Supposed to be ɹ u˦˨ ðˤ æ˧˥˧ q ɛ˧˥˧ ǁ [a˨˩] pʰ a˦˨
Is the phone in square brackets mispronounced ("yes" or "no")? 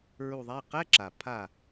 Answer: no